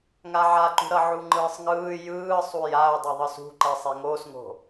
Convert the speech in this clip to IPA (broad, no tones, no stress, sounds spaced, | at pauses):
ŋ a ʕ a ǃ ṳ ɾ ʌ ʕ u ŋ͡ǃ ɯː sˤ ŋ ɯː j ɯː sˤ u j a ʊ̯ dˤ ɛ ðˤ ɯ s ṳ ǃ ɛ sˤ e ŋ oː s ŋ o̤